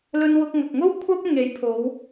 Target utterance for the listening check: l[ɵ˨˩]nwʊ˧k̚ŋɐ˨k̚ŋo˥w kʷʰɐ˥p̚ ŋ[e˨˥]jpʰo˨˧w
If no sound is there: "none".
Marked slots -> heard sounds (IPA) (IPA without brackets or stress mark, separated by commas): ɵ˧, e˨˥